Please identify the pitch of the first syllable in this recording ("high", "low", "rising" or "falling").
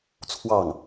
falling